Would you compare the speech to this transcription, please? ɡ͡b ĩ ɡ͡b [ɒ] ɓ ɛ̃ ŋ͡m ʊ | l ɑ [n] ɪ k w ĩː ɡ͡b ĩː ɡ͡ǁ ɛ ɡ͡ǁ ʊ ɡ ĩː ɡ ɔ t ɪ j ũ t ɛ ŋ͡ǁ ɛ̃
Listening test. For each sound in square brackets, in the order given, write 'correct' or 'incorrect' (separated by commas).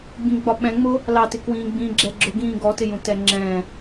correct, incorrect